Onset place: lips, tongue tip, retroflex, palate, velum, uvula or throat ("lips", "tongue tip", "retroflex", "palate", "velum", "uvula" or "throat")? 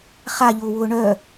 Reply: uvula